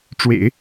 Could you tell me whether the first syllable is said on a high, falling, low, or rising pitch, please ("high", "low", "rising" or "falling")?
low